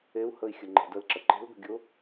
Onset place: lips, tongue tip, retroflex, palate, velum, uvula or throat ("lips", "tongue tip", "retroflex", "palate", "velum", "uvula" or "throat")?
throat